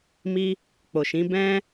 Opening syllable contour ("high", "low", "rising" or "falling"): high